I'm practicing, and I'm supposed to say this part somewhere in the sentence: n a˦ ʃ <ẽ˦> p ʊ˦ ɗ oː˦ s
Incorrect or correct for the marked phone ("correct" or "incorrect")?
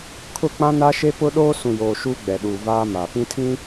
incorrect